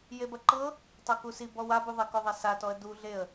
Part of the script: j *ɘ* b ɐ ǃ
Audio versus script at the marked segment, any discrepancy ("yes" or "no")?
yes